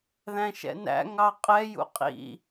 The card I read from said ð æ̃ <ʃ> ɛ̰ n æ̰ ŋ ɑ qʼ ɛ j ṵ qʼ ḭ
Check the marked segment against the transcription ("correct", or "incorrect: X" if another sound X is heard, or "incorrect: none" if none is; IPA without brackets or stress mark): correct